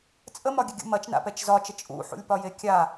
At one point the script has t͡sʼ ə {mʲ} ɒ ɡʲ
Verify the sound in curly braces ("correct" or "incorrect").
incorrect